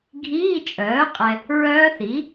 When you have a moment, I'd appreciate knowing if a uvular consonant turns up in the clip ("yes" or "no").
yes